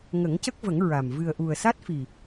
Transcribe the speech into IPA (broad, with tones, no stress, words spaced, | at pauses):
ŋə˨˩˦ŋcə˦˥k̚və˨˩˦ŋ ɹa˨˩m vɨ˨˩ə̯ʔu˨˩ə̯sa˦˥t̚fi˨˩